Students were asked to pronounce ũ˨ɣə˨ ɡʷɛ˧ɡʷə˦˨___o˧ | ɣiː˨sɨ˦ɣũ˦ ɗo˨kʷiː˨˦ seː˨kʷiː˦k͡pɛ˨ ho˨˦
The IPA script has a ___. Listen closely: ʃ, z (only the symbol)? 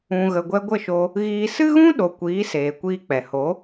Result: ʃ